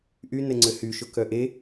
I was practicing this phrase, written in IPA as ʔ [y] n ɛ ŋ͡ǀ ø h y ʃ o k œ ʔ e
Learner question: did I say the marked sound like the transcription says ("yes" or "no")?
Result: yes